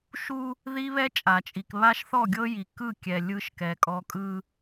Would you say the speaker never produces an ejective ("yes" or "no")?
no